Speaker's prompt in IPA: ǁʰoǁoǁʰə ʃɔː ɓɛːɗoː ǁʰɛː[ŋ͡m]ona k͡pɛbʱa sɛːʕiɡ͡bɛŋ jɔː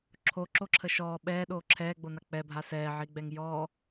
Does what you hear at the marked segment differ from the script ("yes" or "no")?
yes